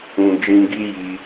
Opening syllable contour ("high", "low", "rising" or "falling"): low